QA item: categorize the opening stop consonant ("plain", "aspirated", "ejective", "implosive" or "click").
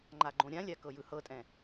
click